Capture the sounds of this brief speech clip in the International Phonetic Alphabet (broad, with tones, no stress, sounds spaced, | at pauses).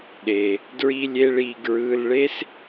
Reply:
ɗ e˩ | d ɹ i˥ lʲ e˥ ɭ i˦˨ ɡ ɹ ɯ˩˧˩ l ɭ e˥ s